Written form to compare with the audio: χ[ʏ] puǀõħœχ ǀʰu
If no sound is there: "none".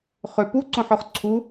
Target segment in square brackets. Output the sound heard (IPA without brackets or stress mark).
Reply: ʏ